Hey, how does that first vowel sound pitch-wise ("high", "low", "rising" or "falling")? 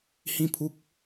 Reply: high